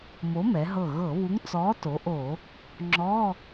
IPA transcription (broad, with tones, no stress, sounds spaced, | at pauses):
m o˨˥ m ɛ˩˧ ɦ ɤ˧˩ ɣ ɤ˧˩˧ β u˨˥ ŋ t͡s ɔː˨˥ t o˩˧ ʔ o˧˩˧ | ŋ͡ǁ ɔː˧˥˧